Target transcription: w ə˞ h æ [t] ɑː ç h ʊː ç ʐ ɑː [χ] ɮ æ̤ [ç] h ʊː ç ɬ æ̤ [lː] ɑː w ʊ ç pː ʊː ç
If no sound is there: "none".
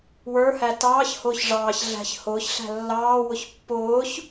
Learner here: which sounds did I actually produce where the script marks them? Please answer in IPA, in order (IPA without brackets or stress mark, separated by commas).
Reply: t, ç, ç, lː